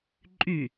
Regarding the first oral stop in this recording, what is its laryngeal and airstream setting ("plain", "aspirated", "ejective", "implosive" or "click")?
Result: click